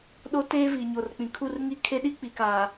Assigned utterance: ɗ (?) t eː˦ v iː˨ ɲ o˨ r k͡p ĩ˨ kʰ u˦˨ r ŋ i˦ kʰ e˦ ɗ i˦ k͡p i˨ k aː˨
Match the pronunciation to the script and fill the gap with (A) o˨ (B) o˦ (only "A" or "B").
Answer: B